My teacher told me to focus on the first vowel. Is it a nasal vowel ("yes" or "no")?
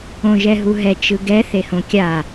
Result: yes